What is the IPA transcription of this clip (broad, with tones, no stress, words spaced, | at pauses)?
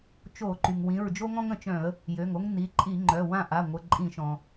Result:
t͡ʃo˧˩˧ǃy˩ŋwĩ˩˧˩ɹ d͡ʒo˥ŋɔ̃˥ŋ ə̃˧˩˧t͡ʃœ̃˧˩˧ə̯ | jø˩˧˩ŋo˥ŋ ni˩˧˩ǃʼi˧˩˧ŋ͡ǃœ˩˧˩ wã˦˨ʔa˩˧˩ŋʷə˩˧˩ ǃʼĩ˧˩˧ʃɔ̃˩